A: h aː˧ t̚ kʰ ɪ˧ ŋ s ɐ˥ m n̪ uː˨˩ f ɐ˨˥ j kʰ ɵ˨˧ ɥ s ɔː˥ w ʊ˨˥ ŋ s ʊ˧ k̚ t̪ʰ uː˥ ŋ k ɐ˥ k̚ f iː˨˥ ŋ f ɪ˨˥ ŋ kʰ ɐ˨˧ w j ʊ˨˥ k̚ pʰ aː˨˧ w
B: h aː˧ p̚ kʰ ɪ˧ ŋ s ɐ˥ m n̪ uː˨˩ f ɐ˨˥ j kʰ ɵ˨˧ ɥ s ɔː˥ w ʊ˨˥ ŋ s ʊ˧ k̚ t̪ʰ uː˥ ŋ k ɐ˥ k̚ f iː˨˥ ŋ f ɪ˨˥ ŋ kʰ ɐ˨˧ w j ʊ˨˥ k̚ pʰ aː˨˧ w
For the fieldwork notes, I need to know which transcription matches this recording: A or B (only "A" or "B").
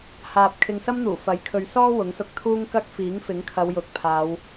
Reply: B